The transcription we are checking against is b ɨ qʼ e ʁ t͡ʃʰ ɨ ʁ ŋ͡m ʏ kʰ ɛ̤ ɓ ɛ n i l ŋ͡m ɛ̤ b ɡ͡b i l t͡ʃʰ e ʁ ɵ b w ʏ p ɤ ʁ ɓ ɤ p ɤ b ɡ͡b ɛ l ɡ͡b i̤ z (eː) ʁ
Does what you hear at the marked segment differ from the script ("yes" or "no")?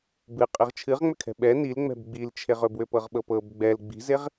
yes